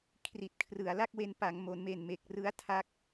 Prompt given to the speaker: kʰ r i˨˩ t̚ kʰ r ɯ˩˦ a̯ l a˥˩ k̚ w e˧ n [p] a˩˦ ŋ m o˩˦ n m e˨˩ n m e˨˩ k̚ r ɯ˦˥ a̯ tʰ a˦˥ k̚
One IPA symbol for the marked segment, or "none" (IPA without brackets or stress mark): p